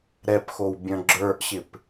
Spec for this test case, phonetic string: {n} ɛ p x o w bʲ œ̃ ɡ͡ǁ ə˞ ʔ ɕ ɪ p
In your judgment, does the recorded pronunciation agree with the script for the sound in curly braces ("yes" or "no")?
no